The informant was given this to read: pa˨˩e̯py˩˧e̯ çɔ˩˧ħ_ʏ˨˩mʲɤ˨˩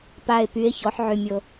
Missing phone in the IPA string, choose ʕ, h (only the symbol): ʕ